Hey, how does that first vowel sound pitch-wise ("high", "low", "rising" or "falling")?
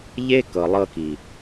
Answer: high